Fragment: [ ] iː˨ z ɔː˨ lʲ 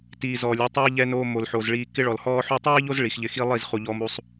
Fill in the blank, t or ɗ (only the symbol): t